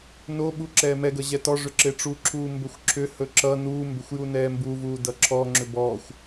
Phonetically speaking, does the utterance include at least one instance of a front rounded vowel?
yes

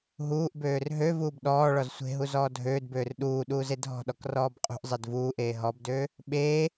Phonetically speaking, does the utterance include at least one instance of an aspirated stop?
no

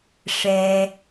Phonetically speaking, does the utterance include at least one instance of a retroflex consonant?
yes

